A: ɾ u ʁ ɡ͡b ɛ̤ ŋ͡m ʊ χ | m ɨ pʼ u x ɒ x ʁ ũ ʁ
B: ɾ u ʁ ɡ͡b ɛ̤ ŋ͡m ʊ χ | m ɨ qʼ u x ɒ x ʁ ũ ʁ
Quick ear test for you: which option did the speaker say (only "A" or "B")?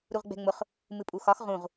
A